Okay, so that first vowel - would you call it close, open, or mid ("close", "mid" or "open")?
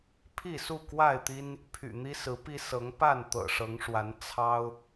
close